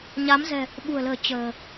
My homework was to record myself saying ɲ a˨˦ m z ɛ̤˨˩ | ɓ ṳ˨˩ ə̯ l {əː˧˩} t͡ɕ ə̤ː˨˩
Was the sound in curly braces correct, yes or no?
no